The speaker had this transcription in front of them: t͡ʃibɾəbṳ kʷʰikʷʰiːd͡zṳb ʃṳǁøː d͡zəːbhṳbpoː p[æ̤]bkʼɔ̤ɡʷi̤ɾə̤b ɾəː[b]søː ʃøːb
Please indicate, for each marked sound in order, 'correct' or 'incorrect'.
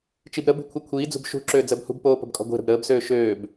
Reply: incorrect: ə̤, correct

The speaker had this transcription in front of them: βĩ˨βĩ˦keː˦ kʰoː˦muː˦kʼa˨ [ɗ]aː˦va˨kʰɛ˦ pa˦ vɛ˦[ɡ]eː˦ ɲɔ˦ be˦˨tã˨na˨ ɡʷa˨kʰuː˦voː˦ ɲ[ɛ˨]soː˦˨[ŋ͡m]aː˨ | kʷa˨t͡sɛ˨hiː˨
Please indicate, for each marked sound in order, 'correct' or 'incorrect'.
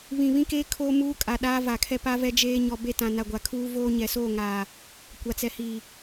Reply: correct, incorrect: d͡ʒ, correct, incorrect: ŋ

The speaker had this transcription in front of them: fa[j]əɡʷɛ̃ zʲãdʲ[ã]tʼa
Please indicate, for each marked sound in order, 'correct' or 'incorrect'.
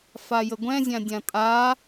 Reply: correct, correct

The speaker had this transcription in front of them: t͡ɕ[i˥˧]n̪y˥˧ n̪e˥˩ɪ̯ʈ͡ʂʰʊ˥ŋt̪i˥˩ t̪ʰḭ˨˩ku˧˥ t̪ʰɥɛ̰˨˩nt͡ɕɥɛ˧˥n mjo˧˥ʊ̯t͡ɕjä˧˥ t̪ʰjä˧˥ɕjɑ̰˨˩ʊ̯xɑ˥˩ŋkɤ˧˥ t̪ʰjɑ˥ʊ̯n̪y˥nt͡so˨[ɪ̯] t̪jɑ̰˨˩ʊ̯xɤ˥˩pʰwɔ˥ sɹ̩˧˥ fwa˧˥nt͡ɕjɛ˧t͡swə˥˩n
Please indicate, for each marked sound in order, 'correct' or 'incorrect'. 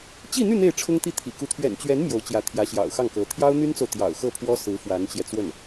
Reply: correct, incorrect: ʊ̯

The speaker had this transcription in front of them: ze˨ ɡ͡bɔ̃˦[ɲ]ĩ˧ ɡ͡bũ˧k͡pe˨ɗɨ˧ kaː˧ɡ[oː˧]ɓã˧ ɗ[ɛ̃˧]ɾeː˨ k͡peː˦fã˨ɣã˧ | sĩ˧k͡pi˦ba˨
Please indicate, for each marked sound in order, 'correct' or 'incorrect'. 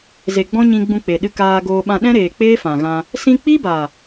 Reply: correct, correct, incorrect: ɛ̃˦

